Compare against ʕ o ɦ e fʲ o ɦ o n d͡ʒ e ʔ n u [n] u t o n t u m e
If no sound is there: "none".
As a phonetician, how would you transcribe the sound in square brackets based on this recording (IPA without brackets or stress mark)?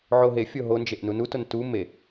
n